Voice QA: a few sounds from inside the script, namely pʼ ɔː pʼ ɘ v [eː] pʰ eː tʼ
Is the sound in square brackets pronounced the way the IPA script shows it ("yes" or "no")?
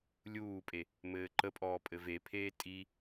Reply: no